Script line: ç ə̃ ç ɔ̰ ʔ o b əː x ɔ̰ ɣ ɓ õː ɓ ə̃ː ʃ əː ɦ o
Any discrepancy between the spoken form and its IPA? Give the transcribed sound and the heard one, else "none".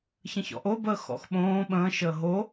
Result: ɣ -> x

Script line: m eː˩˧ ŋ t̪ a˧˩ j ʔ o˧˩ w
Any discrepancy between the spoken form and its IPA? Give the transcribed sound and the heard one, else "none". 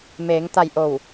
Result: none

